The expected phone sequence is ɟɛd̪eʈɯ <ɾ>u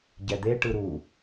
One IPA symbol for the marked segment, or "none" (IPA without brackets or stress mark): ɾ